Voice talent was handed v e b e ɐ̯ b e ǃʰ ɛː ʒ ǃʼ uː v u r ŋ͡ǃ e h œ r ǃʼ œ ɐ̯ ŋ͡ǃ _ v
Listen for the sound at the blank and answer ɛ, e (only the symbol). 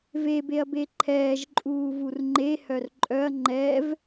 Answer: ɛ